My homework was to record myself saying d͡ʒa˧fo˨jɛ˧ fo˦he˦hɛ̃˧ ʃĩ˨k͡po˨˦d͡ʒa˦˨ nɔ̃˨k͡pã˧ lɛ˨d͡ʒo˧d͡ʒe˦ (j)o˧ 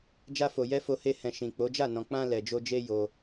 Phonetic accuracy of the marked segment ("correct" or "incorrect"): correct